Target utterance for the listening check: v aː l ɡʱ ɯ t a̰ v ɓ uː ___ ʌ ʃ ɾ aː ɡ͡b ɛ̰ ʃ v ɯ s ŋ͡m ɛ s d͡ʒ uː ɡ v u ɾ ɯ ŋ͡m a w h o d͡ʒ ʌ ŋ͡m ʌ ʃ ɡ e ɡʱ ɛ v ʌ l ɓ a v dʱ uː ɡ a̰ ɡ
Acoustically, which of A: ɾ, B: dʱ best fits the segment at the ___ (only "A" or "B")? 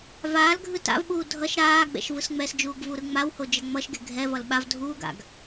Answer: B